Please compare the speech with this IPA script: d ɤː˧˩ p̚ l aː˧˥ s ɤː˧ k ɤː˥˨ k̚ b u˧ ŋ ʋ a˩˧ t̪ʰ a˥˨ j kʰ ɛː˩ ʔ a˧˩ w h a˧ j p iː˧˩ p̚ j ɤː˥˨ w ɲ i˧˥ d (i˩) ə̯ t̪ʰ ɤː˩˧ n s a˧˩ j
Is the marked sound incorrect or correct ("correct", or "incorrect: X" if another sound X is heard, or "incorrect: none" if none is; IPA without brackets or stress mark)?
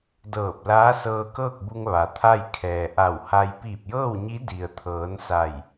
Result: correct